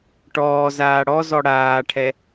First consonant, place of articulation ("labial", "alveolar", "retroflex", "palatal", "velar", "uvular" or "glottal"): retroflex